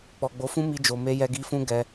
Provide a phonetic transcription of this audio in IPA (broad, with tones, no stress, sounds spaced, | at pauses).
k͡p ɔ˨ ɡ͡b o˨˦ f ũ˦ m i˧ d͡ʒ o˨ m e˧ j ɛ˧ ɡ i˧ f ũ˦ ɡ ɛ˧